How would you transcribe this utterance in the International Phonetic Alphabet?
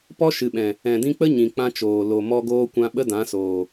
pɔ˦ ʃɨ˨ɓɛ̃˨ | ɛ̃˨dĩ˧k͡pə˦ ɲĩ˨k͡pã˧t͡ʃoː˨ lo˨ mɔ˦ɡoː˦kʷã˦ ɓə˦dã˨˦soː˨

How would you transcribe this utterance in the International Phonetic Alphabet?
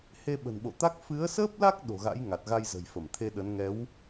he˧ɓə̤˨˩nɓo̰˧˨t̪a˦˥k̚ fɨ˨˦ə̯səː˦˥p̚la˦˥k̚ ɗo̤˨˩ɣa̰˧˥j ŋa˨˩t̚ɣa˧jzə̤˨˩jfə˧˩m t̪ʰe˧ɗə˨˦n ŋɛ˨˦w

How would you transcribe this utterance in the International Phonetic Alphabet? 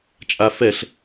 t͡ʃʼa fɛɬ

